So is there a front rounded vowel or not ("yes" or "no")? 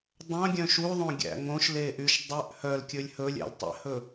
yes